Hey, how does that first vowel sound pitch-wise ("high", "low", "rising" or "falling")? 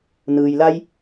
low